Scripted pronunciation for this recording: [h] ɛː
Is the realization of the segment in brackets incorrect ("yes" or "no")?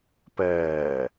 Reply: yes